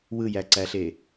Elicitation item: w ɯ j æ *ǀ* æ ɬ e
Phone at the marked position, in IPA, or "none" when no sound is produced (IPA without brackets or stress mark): ǀ